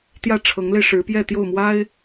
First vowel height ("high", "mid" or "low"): low